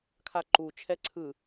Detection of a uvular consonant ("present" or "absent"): absent